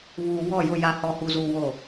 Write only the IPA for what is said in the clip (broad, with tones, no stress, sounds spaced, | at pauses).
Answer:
β uː˨ w ɔ˦˨ j ʊ˦˨ j a˨ h ɔ˨ h u˨ z uː˨ w o˦˨